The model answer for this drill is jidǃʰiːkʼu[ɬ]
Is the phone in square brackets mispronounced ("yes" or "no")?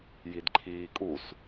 yes